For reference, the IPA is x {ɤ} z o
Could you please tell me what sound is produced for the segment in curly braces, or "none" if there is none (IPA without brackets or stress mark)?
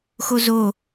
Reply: o